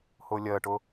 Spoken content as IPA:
hʊːlʲɜʈʊ

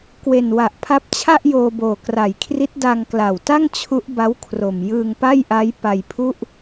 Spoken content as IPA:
kwe˨˩nwa˨˩ʔpʰa˦˥p̚t͡ɕʰa˥˩ʔ joː˧boː˨˩kra˨˩jkʰri˦˥t̚ da˧ŋkla˨˩wta˥˩ŋ t͡ɕʰu˦˥ʔba˦˥w kʰro˨˩m jɯː˧ŋpa˥˩jʔa˦˥j pa˧jpʰu˥˩ʔ

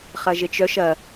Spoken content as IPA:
χɐʒet͡ʃœʃ ɐ

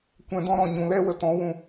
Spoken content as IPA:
kʷɛ̃˨dɔ̃˧ɾɔ̃˨ ɲũ˨lɛ˦wə˧ tɔ̃˨˦wũ˧

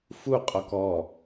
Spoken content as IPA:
fu qʼɔkɔ

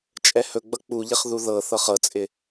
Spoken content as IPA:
t͡ʃʼɛhɵɡ͡bʌ k͡puʎɪχ ðuðɤθɤχ ɤt͡sʼɪ

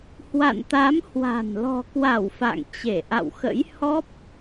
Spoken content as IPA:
hwa̰˧˨nt̪a˨˦mhwa̤˨˩n lɔ̤˨˩kwa˧˩w fa̰˧˨ŋt͡ɕe˧˩ ʔa̰˧˨wxə̰˧˥j hɔ˦˥p̚

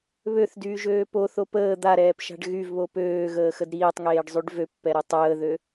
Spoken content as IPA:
βøθdyːʒøː poθo pəː d̪aɾɛːpʃa̤ɖ ɣyvβo pøːɣəːxəd ɾiːtˤŋeːɖzˤyɖ vøpːɛɾe tˤəːðø

